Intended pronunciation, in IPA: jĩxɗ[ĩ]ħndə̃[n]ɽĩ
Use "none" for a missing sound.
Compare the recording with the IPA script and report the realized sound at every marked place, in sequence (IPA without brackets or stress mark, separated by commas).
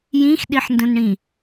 i, n